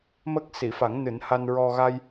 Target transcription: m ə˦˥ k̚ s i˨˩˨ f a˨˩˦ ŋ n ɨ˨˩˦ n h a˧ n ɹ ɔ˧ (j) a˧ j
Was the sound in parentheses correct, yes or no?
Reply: no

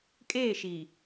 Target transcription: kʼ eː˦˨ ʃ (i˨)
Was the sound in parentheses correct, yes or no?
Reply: yes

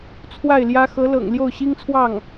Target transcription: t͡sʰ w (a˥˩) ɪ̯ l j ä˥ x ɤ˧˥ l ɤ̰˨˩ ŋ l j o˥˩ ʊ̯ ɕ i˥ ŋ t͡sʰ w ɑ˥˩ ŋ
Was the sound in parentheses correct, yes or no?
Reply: yes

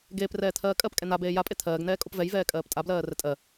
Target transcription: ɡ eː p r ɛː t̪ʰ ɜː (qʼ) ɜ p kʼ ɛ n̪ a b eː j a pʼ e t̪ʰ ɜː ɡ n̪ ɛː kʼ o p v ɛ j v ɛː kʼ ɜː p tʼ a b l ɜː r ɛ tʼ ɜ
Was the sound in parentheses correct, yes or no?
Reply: no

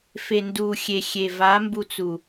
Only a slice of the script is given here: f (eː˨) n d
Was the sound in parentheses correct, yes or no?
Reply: no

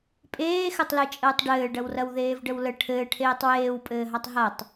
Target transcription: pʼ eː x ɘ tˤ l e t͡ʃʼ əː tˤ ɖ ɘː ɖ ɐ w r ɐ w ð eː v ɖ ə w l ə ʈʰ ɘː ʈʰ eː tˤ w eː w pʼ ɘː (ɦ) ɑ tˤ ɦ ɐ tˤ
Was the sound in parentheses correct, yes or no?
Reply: yes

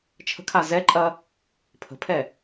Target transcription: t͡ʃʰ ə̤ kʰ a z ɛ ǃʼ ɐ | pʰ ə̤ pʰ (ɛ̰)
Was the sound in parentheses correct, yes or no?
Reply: no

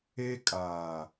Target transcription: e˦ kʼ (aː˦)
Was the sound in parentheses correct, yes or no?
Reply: no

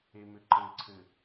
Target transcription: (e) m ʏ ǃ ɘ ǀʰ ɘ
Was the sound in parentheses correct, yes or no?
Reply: yes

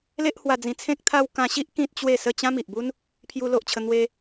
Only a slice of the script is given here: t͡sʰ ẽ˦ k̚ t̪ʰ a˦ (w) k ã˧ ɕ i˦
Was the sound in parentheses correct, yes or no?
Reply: yes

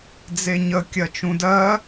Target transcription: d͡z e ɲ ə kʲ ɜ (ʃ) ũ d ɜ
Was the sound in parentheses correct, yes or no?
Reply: no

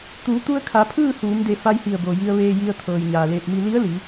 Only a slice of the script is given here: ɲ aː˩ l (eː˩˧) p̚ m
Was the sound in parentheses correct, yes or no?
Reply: no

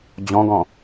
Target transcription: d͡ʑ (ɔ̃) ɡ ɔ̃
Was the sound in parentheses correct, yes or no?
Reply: yes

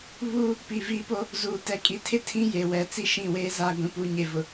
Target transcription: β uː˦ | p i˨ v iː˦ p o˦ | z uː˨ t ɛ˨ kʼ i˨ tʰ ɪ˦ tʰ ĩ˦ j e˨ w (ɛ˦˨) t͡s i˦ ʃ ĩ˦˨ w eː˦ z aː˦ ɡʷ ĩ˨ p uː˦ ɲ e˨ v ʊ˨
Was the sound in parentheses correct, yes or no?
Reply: no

